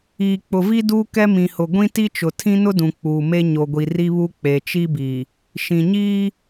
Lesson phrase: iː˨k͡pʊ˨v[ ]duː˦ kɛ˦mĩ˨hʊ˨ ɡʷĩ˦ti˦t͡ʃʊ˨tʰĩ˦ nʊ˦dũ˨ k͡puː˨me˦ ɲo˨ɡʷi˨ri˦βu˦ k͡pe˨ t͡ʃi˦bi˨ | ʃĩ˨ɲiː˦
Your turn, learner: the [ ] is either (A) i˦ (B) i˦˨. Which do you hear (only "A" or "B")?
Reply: A